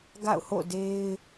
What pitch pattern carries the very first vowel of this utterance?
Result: falling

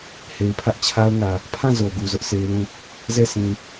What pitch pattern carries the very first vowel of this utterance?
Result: low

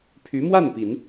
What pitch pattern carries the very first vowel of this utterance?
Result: rising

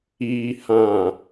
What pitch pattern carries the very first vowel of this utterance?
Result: low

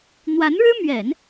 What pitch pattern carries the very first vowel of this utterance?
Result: rising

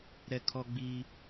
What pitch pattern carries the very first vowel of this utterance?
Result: high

